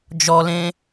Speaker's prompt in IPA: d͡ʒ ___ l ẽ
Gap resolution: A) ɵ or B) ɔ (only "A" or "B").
B